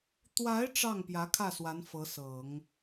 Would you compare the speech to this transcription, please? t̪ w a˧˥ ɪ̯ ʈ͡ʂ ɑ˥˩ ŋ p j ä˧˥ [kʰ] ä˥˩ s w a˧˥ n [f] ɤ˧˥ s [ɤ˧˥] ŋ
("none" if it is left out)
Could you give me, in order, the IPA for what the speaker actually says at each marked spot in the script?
kʰ, f, ɤ˨˩˦

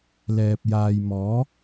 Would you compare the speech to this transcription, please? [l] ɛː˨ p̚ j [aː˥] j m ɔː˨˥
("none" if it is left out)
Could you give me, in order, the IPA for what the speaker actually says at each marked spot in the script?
l, aː˨

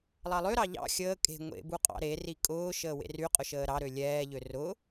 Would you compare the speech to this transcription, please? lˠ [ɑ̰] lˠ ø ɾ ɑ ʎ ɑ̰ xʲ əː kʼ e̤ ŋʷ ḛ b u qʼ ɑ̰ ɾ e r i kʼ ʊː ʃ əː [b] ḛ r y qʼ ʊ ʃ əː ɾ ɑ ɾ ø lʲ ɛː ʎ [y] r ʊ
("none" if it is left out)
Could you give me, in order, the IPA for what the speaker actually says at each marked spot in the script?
ɑ, w, ø

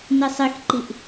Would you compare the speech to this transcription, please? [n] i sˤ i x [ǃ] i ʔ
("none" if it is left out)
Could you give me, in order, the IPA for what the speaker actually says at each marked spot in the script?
n, ǃ

